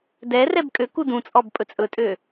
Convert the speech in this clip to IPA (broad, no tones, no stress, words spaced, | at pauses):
dɛrɛb kʼøku dũt͡sʼɔb pʼɵt͡sʼɵtʼø